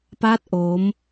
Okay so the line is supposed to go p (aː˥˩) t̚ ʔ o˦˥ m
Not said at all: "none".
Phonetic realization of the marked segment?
aː˥˩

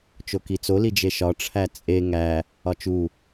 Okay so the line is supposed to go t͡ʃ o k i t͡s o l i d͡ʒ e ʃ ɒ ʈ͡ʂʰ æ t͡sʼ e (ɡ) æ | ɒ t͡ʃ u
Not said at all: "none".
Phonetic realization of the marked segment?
ŋ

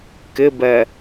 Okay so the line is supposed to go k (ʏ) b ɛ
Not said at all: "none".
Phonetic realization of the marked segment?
ɪ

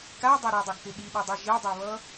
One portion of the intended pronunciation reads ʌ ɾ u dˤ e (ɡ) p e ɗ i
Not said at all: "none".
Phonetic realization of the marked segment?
ɡ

